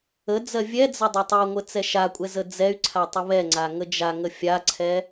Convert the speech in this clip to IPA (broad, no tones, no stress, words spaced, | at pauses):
əd͡zɜ vʲɛd͡zə dˤatˤɛŋʷə t͡sɛʃakʷʼɛ zəd͡zɛy̯ǀʰa tˤəβɛŋ͡ǀa ŋəd͡ʒaŋə fʲaǀʰɛ